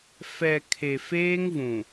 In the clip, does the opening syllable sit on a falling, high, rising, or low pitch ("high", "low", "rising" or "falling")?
low